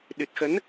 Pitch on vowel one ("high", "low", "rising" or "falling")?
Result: low